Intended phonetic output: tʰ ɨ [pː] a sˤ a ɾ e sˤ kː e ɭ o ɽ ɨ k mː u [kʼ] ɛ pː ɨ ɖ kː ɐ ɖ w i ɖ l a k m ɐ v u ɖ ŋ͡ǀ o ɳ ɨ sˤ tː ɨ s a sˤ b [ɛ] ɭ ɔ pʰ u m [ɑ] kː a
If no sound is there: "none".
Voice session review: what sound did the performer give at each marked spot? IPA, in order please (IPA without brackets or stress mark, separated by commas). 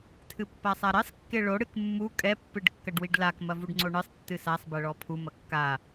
pː, kʼ, ɛ, ɐ